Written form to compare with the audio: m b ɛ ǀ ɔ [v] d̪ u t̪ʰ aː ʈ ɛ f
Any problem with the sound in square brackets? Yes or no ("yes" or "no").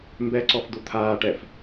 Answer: yes